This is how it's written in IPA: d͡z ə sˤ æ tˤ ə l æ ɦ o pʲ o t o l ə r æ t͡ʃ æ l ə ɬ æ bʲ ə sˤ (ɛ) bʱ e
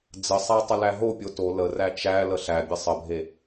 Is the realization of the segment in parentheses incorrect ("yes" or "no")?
yes